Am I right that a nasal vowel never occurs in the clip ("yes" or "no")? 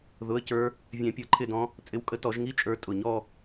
no